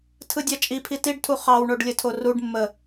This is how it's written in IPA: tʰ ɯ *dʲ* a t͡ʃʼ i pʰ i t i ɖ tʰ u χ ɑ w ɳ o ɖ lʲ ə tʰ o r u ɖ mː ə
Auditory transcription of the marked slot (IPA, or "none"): dʲ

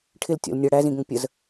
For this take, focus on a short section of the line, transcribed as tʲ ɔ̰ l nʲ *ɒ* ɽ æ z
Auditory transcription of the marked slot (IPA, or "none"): ʌ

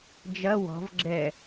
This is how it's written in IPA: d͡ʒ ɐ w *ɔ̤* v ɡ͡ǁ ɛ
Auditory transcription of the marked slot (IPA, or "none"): ɔ̤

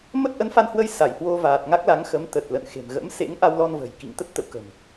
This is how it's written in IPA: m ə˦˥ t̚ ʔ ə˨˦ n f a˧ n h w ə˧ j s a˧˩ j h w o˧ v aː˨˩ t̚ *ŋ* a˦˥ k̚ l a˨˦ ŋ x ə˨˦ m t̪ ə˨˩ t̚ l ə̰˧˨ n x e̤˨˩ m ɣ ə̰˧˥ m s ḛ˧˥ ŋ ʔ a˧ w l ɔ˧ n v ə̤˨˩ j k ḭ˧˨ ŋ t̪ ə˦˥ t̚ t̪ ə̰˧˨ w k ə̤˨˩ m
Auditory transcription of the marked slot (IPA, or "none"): ŋ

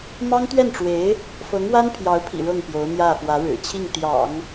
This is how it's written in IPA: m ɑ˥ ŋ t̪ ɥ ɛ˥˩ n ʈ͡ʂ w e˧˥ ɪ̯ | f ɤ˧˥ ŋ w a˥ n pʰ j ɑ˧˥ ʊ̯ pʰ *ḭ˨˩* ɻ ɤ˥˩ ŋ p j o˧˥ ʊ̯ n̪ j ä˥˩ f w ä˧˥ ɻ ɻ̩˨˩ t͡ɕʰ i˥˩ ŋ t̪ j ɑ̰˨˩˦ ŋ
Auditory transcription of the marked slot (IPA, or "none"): ḭ˨˩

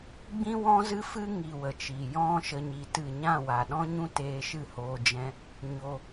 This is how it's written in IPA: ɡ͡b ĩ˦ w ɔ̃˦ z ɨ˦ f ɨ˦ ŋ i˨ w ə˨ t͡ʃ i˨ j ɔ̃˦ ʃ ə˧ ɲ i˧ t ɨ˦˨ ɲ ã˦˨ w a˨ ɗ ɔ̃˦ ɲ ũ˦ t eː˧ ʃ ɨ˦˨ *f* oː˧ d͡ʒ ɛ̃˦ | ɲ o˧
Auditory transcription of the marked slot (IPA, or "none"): h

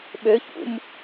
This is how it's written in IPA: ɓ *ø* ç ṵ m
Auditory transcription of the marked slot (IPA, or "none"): ø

